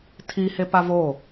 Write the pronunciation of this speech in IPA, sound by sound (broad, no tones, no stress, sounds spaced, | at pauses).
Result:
tʰ i h e p a v o